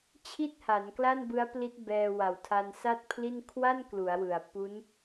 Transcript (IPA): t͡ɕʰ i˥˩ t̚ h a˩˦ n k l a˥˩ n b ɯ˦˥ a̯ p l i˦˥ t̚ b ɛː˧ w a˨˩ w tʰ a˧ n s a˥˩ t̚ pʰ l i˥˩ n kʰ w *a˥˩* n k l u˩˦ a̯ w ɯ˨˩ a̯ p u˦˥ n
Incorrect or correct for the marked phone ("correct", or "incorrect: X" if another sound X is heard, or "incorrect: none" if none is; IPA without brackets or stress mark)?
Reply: correct